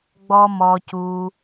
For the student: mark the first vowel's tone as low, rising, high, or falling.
high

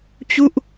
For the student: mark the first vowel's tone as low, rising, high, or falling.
falling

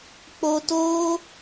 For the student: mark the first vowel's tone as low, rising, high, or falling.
high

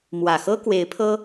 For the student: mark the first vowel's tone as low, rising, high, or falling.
low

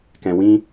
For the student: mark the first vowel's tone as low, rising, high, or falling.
low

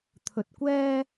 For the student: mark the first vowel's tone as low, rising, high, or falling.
low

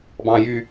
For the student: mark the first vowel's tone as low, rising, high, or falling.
high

